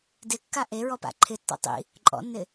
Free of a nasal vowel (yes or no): yes